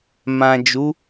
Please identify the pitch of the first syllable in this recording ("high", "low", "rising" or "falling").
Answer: low